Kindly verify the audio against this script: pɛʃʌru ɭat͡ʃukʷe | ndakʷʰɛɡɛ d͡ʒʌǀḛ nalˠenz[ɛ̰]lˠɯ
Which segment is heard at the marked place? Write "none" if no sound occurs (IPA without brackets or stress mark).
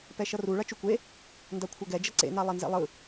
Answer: ɛ̰